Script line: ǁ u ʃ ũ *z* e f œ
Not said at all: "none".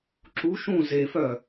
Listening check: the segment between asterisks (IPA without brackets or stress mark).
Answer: z